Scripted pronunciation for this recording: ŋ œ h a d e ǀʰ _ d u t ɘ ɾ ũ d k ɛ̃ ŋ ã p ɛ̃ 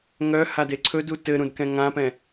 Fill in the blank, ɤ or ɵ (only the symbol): ɵ